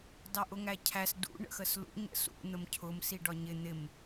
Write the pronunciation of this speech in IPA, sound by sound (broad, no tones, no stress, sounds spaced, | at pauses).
d ɑ ʔ ʊ ŋ æ cʰ æ s d ṵ ɳ ə̰ x ə s l ṵ ɲ ə̰ s ṵ n̪ ə m cʰ ʊ m s i ɖ ɒ ɲ ɪ n̪ ɪ m